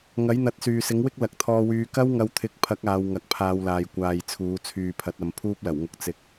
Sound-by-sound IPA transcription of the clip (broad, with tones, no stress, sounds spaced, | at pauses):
ŋ ɐ˨˥ j n̪ ɐ˨˥ t̚ s yː˨ s ɪ˨˥ ŋ w ɪ˥ k̚ l ɐ˨ k̚ t̪ʰ ɔː˧ w yː˧ k ɐ˥ w ŋ ɐ˧ w t̪ʰ ɪ˨˥ k̚ pʰ ɐ˨˥ k̚ aː˨˧ w ŋ ɐ˨˥ k̚ pʰ aː˧ w l aː˨ j kʷ aː˨ j t͡sʰ uː˨˧ t͡sʰ yː˨ pʰ ɐ˨˥ t̚ ɐ˨˧ m pʰ uː˥ p̚ l ɐ˨˩ w ŋ ʊ˧ k̚ t͡s ɪ˧ k̚